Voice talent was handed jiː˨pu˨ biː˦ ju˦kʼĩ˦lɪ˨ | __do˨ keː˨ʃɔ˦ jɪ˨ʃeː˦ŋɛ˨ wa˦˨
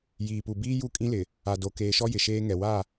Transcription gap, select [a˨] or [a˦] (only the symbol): a˨